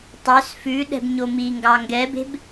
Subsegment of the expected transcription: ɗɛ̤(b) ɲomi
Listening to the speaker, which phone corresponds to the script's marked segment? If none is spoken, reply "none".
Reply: b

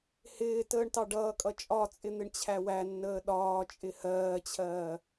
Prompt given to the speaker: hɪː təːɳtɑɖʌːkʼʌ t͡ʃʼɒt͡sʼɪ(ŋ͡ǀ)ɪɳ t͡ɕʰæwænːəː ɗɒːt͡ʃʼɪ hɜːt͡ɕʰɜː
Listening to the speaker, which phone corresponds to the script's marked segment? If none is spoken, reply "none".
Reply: n̪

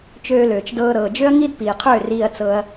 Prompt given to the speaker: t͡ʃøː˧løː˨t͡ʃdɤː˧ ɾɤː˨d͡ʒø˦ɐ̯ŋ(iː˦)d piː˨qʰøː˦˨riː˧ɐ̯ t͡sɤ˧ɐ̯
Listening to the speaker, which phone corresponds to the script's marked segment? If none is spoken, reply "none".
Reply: i˦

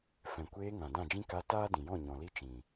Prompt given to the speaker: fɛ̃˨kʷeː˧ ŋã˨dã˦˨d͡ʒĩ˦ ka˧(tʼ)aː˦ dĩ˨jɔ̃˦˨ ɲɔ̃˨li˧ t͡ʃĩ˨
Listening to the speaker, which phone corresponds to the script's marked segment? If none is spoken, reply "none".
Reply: t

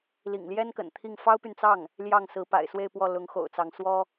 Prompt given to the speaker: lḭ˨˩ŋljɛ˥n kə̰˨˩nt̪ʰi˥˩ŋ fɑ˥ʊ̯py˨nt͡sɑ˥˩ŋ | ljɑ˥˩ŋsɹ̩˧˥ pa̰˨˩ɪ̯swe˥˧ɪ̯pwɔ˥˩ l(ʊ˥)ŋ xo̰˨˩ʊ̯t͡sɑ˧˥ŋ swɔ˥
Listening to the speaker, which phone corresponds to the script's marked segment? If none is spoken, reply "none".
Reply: ʊ˧˥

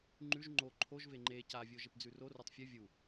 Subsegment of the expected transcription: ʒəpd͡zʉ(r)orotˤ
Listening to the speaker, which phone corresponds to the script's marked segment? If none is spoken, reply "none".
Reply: r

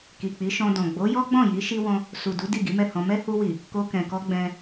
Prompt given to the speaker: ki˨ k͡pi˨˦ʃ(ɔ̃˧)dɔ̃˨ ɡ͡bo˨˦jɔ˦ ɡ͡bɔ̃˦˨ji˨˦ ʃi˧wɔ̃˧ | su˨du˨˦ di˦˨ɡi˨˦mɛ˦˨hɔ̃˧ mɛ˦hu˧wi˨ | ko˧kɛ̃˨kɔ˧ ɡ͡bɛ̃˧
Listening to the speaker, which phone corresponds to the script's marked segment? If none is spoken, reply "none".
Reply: ɔ̃˧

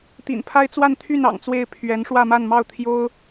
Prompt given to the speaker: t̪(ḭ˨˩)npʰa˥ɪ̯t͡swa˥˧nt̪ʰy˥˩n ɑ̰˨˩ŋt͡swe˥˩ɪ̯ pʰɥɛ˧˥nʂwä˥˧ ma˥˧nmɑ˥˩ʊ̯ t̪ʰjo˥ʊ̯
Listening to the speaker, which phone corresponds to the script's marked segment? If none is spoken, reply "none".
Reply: ḭ˨˩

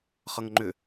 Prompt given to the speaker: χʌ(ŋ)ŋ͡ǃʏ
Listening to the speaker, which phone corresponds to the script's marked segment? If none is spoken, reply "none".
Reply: ŋ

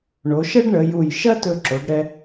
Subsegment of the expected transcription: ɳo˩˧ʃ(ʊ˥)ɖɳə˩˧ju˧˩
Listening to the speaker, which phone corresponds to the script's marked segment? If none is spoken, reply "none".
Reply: ə˥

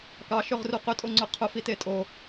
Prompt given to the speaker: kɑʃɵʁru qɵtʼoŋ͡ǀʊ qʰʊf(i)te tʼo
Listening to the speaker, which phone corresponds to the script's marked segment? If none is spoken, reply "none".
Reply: i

